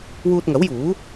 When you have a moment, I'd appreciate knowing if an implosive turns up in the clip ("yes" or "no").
no